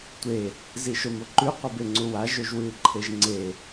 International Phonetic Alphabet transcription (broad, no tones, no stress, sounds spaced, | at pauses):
tʷ e | z i ʃ o m o ǃ ʉ qʷ i b e ŋ͡ǀ u w a ʒ ɵ ʒ w ɨː ǃʰ e ʒ ŋ͡ǀ e